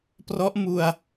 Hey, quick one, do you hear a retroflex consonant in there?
no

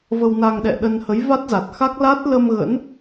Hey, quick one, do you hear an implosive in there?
yes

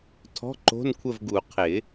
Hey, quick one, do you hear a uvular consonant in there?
yes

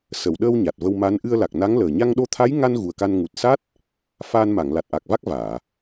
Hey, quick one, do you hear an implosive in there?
yes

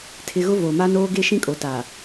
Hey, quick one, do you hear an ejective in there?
yes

